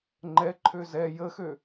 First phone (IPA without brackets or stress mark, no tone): ŋ͡ǃ